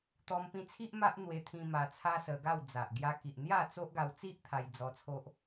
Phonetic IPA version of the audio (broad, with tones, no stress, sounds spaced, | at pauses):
t̪ ɔ˧ m p ĩ˧ t͡sʰ i˦ ʔ m a˦ ʔ n̪ w e˧ t̪ʰ ĩ˧ m a˧ t͡sʰ a˦ s ə˧ ɡ a˥˧ w d͡z a˨ ʔ ɡ j a˧ k i˨ ʔ n̪ j a˥˧ t͡s o˦ ʔ ɡ a˧ w t͡s i˦ ʔ t̪ʰ a˧ j d͡z ɔ˧ t͡sʰ o˦ ʔ